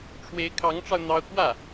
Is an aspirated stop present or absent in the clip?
present